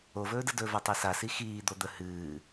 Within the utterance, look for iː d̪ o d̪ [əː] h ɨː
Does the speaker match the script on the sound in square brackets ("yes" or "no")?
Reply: no